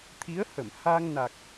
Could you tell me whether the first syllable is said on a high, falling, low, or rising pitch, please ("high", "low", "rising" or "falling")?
rising